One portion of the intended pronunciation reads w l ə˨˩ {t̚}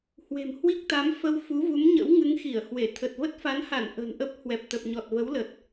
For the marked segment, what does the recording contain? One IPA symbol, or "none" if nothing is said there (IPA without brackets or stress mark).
t̚